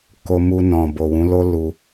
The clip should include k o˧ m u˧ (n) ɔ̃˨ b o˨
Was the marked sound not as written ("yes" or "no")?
no